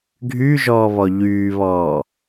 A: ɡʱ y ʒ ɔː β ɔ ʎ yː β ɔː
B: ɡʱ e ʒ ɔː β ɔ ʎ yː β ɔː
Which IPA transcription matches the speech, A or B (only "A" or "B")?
A